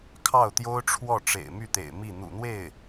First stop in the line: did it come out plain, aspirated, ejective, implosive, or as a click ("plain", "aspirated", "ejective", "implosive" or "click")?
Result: aspirated